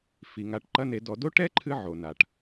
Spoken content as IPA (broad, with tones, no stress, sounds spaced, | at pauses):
f i˨ ŋ a˧ ʈ ǃ ɐ˦ n e˧ d ɔ˧ d o˦ ʈ ɛ˦ ǃʰ ɨ˧ ʕ o˨ n a˨ ʈ